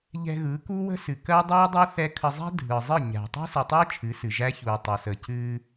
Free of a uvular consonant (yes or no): yes